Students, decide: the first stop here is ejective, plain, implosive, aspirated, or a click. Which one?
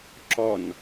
click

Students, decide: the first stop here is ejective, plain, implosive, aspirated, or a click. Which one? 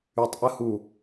plain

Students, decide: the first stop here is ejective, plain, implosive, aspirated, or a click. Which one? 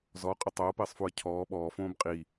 ejective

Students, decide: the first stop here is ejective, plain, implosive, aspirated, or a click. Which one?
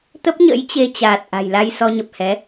plain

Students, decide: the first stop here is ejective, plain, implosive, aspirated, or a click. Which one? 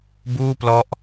plain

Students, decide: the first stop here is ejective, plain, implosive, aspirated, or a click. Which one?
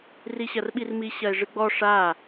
implosive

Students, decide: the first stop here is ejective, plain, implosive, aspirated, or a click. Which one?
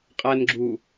ejective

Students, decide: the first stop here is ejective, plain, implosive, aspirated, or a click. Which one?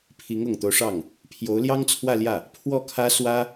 aspirated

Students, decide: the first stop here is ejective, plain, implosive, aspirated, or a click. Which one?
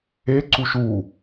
click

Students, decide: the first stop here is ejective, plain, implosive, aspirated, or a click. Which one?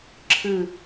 click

